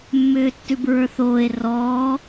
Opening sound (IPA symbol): mː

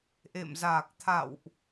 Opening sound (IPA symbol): ʔ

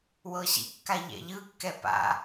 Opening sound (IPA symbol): w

